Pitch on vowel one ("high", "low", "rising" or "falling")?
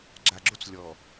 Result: low